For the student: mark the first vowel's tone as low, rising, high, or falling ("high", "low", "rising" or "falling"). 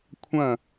falling